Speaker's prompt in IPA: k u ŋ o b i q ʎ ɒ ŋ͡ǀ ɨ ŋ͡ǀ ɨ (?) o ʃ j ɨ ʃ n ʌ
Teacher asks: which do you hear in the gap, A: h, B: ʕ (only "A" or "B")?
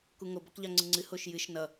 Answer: A